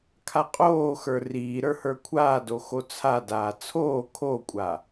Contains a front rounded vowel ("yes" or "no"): no